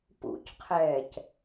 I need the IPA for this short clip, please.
pṵcqʰɛːc

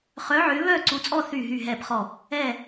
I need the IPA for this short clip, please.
χœ˨˦ʕʏː˨˦ βœː˦˨ǀu˨˦t͡sʼɔ˦˨ θyː˦˨ɦyː˦˨ɦɛː˦˨pχɔ˦˨ | ɛː˦˨

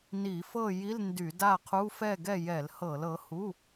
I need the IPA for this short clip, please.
ni˧˩˧fɤ˥˨ ji˧˥˧lndy˧˩˧da˥˨qʰu˧˥˧ fɛ˥˨ɡɛ˥˨ jɛ˧˩˧lhɤ˧˩˧lɤ˨˥hu˧˥˧

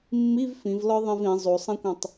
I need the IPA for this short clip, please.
mːiv fĩvlɒ ðˤĩvĩ zˤosˤĩkʷɛ̃tˤ

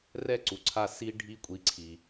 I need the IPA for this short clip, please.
rɛ˦ǀu˨ǀʰa˧ si˧ɖʱi˧kʷʼi˨ ǀʰi˨

